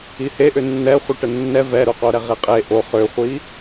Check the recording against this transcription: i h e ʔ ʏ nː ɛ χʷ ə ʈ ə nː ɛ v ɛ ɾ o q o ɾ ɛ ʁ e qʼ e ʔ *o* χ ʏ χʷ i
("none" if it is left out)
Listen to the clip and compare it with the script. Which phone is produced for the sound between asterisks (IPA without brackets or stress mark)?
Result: o